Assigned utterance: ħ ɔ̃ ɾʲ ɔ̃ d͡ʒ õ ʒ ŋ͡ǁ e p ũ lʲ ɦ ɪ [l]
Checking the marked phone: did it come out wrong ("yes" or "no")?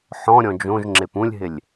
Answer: yes